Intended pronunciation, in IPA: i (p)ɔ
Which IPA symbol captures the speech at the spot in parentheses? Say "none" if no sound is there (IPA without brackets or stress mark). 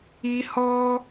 h